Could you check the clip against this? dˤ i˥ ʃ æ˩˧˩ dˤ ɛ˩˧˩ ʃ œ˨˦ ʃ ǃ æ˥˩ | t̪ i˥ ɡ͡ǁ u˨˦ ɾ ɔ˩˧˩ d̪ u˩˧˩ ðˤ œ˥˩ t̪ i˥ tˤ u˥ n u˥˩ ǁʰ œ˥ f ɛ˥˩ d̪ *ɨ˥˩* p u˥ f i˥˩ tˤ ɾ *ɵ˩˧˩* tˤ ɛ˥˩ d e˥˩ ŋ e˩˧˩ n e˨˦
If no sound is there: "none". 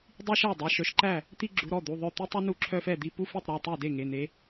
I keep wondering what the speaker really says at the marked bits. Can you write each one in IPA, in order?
i˥˩, œ˩˧˩

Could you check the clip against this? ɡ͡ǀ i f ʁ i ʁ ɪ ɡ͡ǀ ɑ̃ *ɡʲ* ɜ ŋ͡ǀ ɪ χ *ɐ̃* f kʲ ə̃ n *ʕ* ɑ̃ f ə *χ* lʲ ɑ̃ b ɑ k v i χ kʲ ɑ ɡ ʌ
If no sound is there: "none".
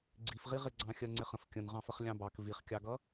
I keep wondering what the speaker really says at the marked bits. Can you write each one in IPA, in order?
xʲ, ə̃, ʁ, χ

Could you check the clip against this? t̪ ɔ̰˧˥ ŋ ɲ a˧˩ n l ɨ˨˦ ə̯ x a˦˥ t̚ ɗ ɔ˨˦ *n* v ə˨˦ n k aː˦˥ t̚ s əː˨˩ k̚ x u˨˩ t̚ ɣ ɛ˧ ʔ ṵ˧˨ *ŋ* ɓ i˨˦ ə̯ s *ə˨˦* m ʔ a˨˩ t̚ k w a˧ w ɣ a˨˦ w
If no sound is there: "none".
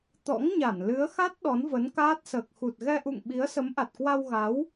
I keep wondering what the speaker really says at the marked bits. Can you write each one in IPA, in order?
n, ŋ, ə˨˦

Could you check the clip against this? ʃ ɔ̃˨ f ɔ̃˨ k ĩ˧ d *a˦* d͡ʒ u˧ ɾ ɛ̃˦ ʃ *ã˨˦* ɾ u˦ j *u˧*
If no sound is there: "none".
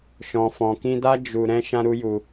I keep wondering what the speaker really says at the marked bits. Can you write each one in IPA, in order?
a˦, ã˦, u˧

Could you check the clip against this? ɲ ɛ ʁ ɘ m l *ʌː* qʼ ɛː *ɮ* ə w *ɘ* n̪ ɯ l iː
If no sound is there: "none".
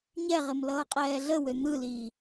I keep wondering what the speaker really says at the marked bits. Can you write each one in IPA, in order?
ʌː, ɮ, ø

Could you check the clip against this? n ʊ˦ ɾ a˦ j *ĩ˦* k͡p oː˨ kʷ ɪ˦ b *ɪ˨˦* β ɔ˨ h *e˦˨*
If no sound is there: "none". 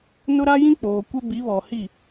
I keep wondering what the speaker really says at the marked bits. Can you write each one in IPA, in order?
ĩ˦, i˨˦, i˦˨

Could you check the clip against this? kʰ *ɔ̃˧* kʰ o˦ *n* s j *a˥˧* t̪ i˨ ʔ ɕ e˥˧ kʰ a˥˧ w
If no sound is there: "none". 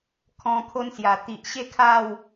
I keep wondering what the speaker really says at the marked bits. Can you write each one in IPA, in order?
ɔ̃˧, n, a˨˩

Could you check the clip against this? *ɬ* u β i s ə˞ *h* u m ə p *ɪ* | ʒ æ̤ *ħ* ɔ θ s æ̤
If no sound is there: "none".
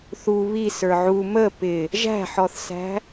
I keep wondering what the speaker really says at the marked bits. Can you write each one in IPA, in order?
θ, ʕ, ɪ, ħ

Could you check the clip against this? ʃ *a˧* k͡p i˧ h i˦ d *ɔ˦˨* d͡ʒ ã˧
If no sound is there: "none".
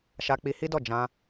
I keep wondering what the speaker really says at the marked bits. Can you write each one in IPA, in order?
a˧, ɔ˦˨

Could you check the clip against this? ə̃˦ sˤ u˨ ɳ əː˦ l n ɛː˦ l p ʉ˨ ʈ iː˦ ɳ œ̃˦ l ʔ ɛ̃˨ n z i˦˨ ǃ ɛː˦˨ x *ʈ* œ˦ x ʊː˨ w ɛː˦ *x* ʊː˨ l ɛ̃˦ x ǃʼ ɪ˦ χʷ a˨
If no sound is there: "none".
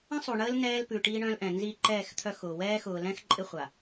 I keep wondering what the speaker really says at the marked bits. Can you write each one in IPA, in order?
t̪ʰ, x

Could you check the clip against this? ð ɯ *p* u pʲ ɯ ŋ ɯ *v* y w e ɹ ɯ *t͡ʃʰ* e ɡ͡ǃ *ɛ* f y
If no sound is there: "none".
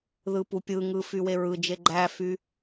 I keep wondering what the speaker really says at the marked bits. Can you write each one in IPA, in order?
p, f, d͡ʒ, æ

